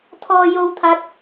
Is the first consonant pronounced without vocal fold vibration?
yes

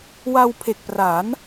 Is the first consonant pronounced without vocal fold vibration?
no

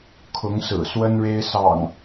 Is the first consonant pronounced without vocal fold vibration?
yes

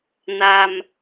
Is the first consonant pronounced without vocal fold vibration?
no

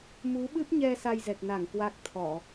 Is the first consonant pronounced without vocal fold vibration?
no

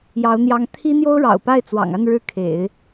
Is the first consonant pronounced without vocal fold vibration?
no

